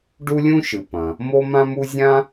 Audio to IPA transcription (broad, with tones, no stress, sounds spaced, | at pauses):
ɖ u˥ lʲ ũ˥ ʃ ɨ˩ p ɐ̃˩ | m o˥ m ã˥ m u˥ zʲ ã˥